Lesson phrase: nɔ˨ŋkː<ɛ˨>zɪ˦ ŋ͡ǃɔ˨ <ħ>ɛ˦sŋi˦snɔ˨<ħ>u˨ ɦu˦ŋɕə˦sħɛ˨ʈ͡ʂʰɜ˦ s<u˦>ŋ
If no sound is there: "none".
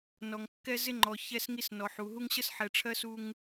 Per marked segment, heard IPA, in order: ɛ˦, ç, ħ, u˦

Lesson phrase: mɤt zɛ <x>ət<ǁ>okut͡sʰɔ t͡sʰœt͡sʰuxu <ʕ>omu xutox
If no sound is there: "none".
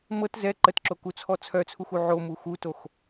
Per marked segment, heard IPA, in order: ǃ, ǁ, ʕ

